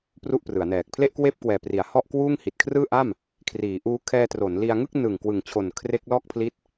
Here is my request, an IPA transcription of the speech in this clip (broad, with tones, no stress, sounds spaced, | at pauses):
p r u˥˩ ʔ p r ɯ˩˦ a̯ n ɛː˨˩ k̚ pʰ l e˥˩ ʔ k w eː˥˩ p̚ k w ɛː˨˩ p r i˩˦ a̯ h ɔ˥˩ ʔ k w uː˥˩ ŋ h i˨˩ t̚ kʰ r ɯː˥˩ ʔ a˥˩ m | kʰ r iː˩˦ ʔ uː˦˥ kʰ ɛː˧ t r o˩˦ n l i˧ a̯ ŋ ɯ˥˩ k̚ n ɯː˨˩ ŋ k w ɯ˨˩ ŋ t͡ɕʰ o˨˩ n kʰ r e˦˥ k̚ l ɔː˥˩ k̚ pʰ l i˦˥ t̚